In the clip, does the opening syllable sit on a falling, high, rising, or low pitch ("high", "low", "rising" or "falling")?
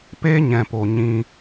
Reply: high